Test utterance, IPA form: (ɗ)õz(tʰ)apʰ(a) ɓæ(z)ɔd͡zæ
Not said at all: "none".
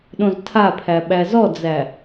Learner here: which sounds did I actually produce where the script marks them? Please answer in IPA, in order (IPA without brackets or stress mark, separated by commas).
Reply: ɗ, tʰ, æ, z